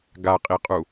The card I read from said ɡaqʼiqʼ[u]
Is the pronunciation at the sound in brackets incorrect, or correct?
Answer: correct